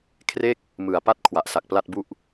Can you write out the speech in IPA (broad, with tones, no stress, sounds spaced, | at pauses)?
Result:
kʰ r e˥˩ k̚ | m ɯ˨˩ a̯ p a˥˩ t̚ kʰ w a˨˩ ʔ s a˨˩ k̚ p l a˥˩ t̚ b u˥˩ ʔ